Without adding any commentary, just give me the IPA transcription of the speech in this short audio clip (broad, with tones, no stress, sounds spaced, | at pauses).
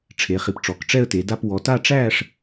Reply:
ʈ͡ʂʰ e˨˦ χ i˨˦ p ʈ͡ʂ ɔ˨˦ k ʈ͡ʂ ɛ˥˧ ə̯ t e˨˦ d a˥˧ p w ɔ˨˦ t a˥˧ ʈ͡ʂ æː˥˧ ʂ